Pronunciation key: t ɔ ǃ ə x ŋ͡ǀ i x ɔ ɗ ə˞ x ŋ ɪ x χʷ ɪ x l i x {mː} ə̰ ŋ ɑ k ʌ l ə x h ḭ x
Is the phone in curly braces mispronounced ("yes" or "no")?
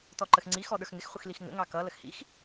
yes